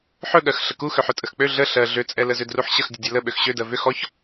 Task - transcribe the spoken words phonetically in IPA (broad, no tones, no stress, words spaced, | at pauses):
ħɵɠɜx ɬəkuxøħɵ tʼəxk͡pø ɮə ɬɜ ɮøt͡sʼɛ ləzʏdruħɕəx dʲədʲɛlə ɓøxɕødɜ vʏ xɔç